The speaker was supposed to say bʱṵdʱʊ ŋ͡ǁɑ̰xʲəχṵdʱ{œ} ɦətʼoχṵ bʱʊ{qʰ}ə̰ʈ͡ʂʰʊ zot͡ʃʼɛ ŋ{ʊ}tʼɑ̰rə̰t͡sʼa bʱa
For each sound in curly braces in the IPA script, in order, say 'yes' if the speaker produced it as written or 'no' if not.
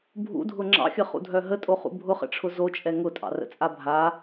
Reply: yes, no, yes

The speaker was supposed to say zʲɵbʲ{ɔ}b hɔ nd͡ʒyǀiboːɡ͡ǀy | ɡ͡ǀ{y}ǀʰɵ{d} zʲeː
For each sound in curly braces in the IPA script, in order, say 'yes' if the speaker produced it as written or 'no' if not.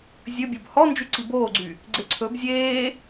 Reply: no, no, no

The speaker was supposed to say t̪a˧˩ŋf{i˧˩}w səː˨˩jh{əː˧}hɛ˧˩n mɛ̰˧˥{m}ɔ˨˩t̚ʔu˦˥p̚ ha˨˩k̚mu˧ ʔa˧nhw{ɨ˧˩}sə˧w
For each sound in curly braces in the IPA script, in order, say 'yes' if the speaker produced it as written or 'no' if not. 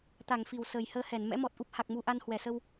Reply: yes, yes, yes, no

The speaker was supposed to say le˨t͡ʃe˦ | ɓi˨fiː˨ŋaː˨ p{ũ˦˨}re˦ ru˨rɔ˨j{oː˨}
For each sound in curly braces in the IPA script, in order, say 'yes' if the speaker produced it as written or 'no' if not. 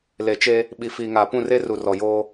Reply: yes, no

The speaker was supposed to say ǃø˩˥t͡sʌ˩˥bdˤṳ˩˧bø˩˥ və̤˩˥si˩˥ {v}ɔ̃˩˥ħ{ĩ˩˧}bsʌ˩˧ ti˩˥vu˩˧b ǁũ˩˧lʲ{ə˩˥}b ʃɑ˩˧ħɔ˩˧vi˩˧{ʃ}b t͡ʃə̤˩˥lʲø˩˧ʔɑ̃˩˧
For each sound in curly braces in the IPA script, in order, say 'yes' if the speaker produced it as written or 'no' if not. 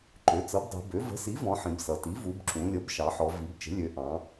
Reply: yes, yes, yes, no

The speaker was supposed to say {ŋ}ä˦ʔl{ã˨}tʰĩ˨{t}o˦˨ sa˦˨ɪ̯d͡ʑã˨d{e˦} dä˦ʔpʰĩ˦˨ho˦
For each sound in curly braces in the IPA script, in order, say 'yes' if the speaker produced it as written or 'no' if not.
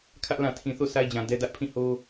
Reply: no, yes, no, no

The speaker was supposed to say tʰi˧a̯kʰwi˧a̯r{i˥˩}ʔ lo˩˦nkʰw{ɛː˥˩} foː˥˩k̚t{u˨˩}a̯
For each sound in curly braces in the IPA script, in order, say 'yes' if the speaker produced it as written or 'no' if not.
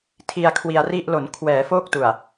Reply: yes, no, yes

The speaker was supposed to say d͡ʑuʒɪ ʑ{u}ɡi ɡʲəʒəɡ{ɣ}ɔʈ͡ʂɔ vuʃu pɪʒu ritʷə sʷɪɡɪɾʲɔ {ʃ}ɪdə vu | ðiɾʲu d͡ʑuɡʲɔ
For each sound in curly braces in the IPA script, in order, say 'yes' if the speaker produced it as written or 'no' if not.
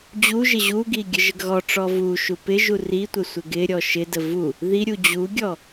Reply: yes, yes, yes

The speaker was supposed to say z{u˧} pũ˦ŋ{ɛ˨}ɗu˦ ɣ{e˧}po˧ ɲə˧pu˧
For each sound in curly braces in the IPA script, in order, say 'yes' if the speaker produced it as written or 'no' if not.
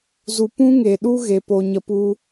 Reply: yes, no, yes

